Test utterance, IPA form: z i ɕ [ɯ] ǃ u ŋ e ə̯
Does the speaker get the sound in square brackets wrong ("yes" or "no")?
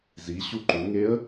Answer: yes